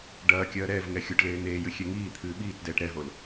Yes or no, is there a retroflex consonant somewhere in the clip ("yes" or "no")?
yes